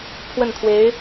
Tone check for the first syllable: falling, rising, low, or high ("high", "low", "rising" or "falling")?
falling